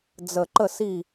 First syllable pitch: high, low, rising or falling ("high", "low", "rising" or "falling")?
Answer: low